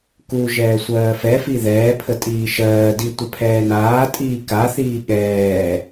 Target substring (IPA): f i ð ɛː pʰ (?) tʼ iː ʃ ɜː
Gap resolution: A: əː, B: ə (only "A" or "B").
B